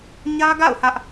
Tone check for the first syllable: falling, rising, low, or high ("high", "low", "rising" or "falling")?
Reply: high